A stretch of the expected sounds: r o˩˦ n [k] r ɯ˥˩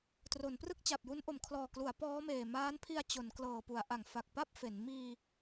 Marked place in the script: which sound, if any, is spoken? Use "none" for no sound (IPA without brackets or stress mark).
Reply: p